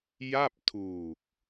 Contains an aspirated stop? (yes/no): yes